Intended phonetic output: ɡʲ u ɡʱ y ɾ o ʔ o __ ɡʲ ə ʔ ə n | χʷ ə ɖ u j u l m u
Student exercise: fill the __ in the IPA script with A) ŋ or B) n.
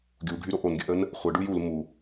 B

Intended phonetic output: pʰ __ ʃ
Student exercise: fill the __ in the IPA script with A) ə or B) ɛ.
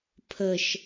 A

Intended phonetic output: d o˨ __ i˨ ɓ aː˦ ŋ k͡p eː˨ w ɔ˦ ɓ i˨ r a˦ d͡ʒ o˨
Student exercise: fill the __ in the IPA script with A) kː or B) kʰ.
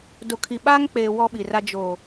B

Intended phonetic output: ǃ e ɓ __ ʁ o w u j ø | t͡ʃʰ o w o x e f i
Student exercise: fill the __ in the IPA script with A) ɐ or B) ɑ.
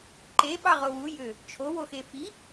B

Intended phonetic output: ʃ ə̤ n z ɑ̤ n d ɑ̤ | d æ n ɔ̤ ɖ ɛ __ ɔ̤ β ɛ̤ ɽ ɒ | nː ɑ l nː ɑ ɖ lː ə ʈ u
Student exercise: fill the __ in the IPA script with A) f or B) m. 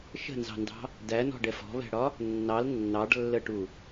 A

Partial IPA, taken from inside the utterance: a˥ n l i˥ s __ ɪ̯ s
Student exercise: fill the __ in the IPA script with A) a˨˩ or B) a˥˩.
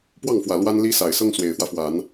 A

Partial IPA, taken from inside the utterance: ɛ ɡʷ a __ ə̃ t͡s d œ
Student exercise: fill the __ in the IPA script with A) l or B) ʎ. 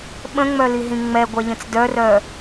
B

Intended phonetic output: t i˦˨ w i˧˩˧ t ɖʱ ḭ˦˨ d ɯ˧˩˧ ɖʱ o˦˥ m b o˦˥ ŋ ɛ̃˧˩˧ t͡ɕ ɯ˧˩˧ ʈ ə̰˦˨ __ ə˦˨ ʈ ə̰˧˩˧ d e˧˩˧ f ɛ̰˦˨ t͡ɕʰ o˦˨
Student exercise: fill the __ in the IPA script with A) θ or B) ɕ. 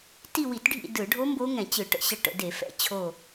B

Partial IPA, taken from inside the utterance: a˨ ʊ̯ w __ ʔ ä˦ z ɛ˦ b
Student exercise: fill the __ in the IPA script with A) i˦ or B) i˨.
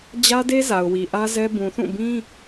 B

